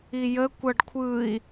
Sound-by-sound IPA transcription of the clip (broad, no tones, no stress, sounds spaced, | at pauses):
i j ə kʷ ʌ ɖ kʷʰ ɯ i̯